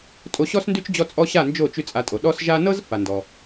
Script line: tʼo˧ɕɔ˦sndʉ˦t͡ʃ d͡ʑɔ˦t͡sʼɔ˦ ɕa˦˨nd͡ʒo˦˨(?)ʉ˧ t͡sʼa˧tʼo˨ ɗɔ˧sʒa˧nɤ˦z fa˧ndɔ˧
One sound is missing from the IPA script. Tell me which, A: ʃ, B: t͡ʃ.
B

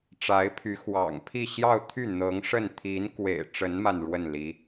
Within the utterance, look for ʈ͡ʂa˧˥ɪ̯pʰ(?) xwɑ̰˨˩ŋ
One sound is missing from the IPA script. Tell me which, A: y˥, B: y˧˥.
B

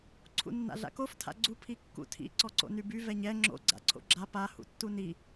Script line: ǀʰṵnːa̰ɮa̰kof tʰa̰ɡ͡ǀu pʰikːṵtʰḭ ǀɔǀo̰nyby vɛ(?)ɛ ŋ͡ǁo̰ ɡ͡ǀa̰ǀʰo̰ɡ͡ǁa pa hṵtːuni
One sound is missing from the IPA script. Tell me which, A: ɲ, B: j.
A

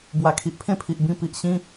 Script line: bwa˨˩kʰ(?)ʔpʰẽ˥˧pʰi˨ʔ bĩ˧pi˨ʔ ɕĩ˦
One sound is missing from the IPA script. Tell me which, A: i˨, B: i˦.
A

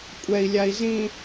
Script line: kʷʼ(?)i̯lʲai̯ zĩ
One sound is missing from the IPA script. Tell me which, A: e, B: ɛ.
B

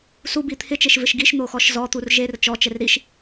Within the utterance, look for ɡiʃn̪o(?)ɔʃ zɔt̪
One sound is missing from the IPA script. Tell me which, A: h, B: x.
B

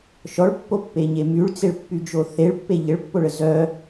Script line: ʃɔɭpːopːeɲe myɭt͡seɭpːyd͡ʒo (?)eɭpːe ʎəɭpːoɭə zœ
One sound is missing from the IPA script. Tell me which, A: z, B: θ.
B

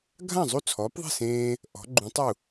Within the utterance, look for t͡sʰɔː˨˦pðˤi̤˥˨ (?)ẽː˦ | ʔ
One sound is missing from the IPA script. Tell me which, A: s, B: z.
A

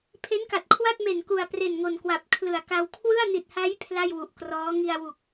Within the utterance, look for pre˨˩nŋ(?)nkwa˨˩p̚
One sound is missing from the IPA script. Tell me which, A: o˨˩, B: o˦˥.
A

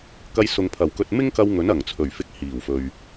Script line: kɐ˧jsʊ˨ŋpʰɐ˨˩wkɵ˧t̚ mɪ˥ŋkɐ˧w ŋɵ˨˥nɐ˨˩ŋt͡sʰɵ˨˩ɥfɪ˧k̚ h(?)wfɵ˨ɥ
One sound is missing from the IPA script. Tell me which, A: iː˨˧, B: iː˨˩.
B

